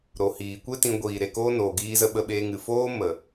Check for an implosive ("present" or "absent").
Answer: present